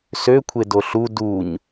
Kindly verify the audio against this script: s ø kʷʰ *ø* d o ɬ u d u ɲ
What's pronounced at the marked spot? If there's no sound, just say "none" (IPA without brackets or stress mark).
e